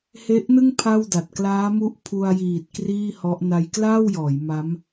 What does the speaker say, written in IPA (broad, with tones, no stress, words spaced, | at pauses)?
he˦˥ʔnɯ˥˩ŋ pʰa˥˩wda˨˩t̚ klaː˦˥mu˦˥ʔ pʰu˧a̯jiː˨˩t̚ kriː˥˩hɔ˦˥ʔ na˧jklaː˥˩wjɔː˩˦j ma˦˥m